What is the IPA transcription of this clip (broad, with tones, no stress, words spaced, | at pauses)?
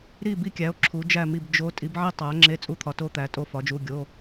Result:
ɾi˥˨ bi˥˨kʲæ˨˥o̯ ǁʰu˨˥d͡ʒæ˥˨mi˥˨b d͡ʒo˨˥ tʼi˨˥bʕi˥˨ tˤæ˨˥ ŋ͡ǁe˧˥˧t͡sʼu˥˨t̪ʰɒ˨˥to˧˥˧ t̪æ˨˥tʼo˥˨fɒ˨˥d͡ʒu˧˥˧ ɡʲo˧˥˧